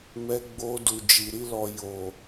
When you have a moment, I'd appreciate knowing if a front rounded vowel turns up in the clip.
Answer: no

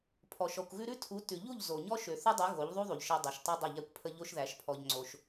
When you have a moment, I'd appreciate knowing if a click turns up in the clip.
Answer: yes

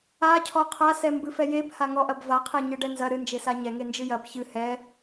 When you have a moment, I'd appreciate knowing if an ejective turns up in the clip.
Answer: no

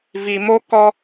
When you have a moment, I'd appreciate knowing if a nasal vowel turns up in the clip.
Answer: no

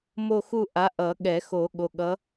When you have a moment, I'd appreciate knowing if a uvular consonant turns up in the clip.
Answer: no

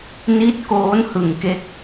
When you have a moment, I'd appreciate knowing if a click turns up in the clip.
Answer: no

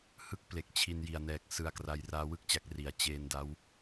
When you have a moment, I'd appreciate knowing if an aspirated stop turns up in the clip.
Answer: yes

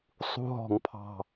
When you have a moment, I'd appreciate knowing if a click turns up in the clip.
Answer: no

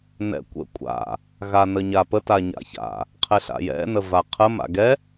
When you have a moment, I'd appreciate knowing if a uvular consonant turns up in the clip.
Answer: yes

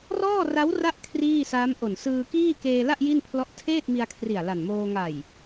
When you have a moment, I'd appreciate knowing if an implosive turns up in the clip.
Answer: no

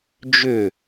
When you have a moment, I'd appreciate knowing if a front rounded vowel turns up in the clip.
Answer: yes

